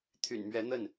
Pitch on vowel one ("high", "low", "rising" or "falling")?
low